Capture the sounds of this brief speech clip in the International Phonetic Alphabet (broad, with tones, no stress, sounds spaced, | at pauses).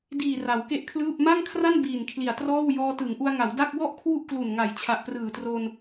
d iː˨˩ r a˩˦ w k e˥˩ ʔ kʰ l ɯː˥˩ p̚ m a˥˩ ŋ kʰ r a˥˩ n b iː˨˩ n kʰ l i˨˩ a̯ t r ɔː˥˩ w j ɔː˧ t ɯ˩˦ ŋ ʔ u˧ a̯ ŋ a˩˦ w d a˥˩ k̚ w ɔ˥˩ ʔ kʰ w u˥˩ ʔ k l u˨˩ n ŋ a˩˦ j t͡ɕʰ a˨˩ ʔ p r ɯː˨˩ t r o˧ n